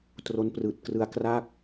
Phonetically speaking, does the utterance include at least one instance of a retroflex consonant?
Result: no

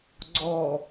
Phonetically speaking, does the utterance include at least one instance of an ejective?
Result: no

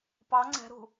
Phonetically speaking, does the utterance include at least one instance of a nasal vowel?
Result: no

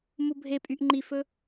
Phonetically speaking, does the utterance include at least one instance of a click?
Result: yes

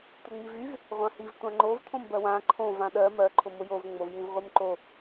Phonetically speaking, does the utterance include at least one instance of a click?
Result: yes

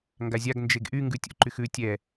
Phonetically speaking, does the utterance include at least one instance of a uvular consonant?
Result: no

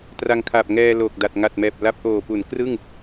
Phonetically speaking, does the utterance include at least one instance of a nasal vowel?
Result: no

